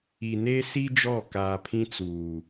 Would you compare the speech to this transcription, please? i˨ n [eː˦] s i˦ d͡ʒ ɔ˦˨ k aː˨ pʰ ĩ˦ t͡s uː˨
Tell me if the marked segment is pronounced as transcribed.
no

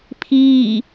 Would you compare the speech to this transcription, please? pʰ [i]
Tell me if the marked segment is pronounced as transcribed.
no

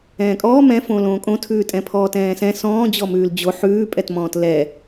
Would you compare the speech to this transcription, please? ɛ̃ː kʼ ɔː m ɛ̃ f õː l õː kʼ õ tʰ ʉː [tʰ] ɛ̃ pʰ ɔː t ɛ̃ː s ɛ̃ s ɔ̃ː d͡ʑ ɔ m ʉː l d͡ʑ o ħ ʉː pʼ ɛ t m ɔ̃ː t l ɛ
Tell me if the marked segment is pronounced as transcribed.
no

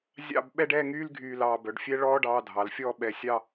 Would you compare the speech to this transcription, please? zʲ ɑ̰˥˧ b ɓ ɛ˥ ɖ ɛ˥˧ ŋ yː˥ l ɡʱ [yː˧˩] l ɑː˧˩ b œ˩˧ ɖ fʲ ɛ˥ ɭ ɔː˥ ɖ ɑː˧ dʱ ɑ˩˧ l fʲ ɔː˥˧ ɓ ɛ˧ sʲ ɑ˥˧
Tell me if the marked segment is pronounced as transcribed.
yes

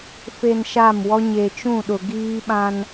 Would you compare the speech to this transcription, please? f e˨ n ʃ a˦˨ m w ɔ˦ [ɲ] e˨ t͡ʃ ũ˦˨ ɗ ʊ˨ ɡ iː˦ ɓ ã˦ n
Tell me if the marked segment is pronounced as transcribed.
yes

